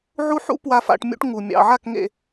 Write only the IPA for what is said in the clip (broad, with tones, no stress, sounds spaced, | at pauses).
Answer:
ʕ u˦ ħ ṵ˦ p w a˨ f a̰˨ ʈ mʲ ṵ˦ ʈ ŋ u˨ mʲ ɑ̰˨ ʕ a˦˨ k ŋ ḛ˨